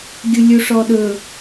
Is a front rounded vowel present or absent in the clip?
absent